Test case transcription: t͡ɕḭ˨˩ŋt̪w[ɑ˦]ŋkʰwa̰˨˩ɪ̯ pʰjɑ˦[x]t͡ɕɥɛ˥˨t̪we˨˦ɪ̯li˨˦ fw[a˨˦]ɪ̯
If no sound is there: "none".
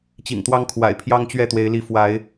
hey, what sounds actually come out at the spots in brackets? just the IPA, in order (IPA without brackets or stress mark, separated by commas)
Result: ɑ˦, ŋ, a˨˦